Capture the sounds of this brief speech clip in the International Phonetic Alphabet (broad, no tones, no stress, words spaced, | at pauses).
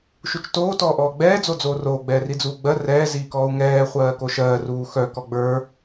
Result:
ʃut͡ʃtoː tɔːʔɔːɡ͡bɛː d͡zod͡zoːroː ɡ͡bɛːrid͡zuːɡ͡bɜ rɛː ziːkɔːu̯ŋɛː χʷɜːkoʃɜː ruːxœ kɔɡ͡bə˞